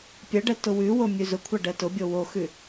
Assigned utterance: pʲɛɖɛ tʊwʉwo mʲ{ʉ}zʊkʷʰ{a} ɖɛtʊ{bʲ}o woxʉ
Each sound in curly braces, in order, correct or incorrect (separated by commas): correct, correct, correct